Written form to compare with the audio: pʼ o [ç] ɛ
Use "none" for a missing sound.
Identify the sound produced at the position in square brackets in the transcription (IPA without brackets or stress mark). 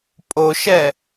ʃ